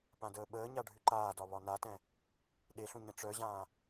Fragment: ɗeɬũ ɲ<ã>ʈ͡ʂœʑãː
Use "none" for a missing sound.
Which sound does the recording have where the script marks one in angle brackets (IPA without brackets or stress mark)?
ə̃